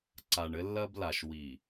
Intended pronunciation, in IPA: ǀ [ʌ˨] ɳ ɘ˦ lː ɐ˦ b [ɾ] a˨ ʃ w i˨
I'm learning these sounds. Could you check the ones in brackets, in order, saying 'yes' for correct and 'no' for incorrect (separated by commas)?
no, no